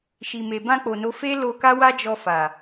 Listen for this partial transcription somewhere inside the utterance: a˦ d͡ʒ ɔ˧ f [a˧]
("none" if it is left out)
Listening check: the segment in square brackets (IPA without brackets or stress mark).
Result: a˨